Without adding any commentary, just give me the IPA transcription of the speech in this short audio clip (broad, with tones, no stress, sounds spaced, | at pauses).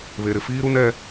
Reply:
β e˨ ɾ ɪ˨ f iː˦ ɾ u˦ n ɛ˦